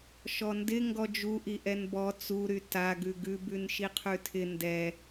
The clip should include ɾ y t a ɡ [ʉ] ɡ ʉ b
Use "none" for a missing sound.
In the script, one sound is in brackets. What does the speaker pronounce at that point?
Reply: ʉ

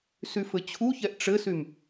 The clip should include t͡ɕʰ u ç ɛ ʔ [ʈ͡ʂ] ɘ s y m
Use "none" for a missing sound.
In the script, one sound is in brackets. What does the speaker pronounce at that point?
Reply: ʈ͡ʂ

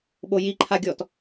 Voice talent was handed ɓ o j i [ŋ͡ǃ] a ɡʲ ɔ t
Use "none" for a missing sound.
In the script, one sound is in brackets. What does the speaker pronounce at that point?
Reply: ǃʰ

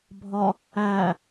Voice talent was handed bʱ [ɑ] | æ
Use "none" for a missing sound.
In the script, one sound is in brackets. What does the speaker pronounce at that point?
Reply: ɒ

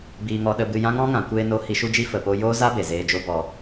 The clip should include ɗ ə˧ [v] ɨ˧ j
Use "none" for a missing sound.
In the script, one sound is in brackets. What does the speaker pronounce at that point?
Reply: b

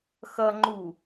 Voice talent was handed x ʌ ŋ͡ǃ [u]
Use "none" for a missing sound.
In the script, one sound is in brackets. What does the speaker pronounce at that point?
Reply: u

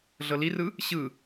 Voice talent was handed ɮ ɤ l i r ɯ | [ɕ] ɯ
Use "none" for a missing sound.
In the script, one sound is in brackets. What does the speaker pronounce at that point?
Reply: ɕ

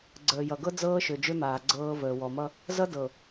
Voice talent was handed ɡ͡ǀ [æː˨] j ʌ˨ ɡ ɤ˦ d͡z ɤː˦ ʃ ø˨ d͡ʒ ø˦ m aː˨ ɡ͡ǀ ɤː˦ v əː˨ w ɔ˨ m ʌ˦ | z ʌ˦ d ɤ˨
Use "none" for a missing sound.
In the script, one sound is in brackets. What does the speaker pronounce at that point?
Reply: əː˨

